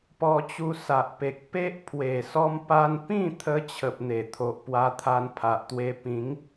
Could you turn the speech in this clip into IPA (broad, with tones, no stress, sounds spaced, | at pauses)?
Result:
p ɔ˧ t͡ɕ u˧ s a˨ ʔ p e˨ k̚ p e˦ ʔ pʰ w e˨˩ s ɔ˧ m p a˧ n p ĩ˥˧ t̪ʰ ə˧ t͡ɕʰ ə˨ p̚ n̪ e˨˩ t̪ʰ o˨ ʔ p w a˧ t̪ʰ a˧ n pʰ a˨ ʔ t̪ w e˧ p ĩ˨˦ ŋ